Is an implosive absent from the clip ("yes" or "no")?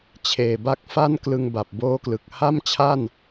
yes